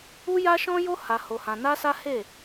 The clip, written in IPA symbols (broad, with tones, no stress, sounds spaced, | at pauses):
u˦ j a˦ ʃ ɔ̃˦ j o˦ h a˧ h o˧ h ã˧ n a˦ s a˦ h e˦˨